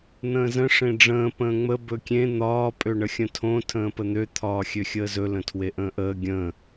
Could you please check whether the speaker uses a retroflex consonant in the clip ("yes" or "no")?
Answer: yes